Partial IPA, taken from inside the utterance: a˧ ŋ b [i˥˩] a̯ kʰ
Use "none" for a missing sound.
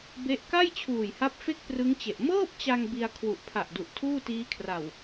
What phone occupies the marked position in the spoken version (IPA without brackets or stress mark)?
i˧